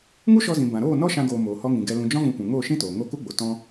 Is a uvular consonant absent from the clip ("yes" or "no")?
yes